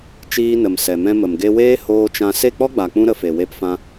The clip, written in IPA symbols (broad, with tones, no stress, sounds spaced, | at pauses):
t͡ʃ iː˧ n ə˨ m s ɛ˨ m ɛ̃˧ m ə˨ m ɡ e˧ w eː˦ h oː˧ t͡ʃ ã˧ s e˦˨ k͡p ɔ˦ ɡ͡b a˨ k͡p ũ˧ ɾ ə˧ f e˨ w e˧ p f ã˧